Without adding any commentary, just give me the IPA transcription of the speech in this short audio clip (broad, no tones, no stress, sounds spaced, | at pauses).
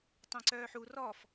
tˤ ẽ ǀ œː ħ u r ɔ f